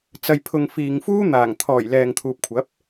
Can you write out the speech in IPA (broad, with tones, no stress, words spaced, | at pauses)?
t͡sɐ˧j pʰʊ˧ŋfiː˨ŋ fuː˥n̪aː˨˩ŋ t̪ʰɔː˨˩j lɛː˨ŋt̪ʰuː˨p̚kʷʰɐ˨˥p̚